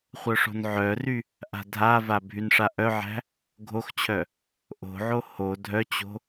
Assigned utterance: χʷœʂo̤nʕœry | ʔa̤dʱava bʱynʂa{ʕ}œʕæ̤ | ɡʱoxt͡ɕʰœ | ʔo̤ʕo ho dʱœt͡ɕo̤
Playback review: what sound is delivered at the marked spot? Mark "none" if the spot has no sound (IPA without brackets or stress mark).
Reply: ʔ